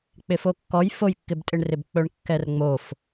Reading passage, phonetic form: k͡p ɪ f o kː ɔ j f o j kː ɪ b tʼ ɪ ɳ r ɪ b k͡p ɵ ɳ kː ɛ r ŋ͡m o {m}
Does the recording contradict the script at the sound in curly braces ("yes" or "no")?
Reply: yes